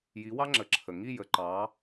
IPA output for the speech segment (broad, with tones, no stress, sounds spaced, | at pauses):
j i˩˧ w ɑ˦ ŋ͡ǁ ə˩ ǁʰ ə˩ ŋ i˦˨ j ə˩ ǃ ɑ˩˧